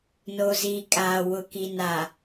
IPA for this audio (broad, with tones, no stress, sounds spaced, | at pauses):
n o˨ z iː˨ kʼ a˨ w ʊ˨ k i˨ n a˨